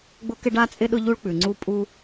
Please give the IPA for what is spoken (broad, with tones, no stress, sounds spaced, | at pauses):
ɡ͡b ʊ˥ k ɪ˥ ɖ a˥ t͡sʼ ɪ˥ ɗ ʊ˥ ʎ u˥ ɭ k͡p ʉ˩ ŋ͡ǀ u˥ pʼ u˥